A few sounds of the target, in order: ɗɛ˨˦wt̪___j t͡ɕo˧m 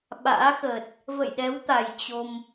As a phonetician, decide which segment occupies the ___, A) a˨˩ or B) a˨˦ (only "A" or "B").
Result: A